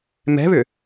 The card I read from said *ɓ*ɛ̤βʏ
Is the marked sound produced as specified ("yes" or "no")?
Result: no